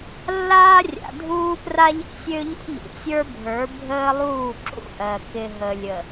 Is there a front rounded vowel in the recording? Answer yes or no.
yes